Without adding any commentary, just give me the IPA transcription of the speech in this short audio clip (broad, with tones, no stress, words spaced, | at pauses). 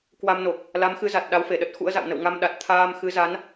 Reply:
kwa˧mno˨˩k̚ | la˨˦mxɨ˨˦za˨˩t̚ ɗa˨˦wfe˧˩ɗə˦˥t̚ xṵ˧˥ə̯za̰˧˨w nə̰˧˨w ŋa˧m ɗa˨˩t̚t̪ʰaː˧m xɨ˨˦za˨˦n